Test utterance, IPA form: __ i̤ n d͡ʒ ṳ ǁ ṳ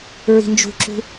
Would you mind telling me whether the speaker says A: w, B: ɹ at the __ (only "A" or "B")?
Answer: B